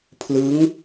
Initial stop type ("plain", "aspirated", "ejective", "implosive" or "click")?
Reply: aspirated